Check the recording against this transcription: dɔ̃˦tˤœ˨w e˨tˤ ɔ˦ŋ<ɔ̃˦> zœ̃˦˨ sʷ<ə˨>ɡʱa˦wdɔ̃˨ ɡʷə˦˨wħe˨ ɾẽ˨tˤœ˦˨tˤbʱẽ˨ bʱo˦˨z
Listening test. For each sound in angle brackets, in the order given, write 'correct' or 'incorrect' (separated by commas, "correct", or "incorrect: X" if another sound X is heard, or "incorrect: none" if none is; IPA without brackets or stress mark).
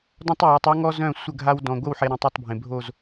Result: incorrect: ɔ˦, incorrect: ə˦˨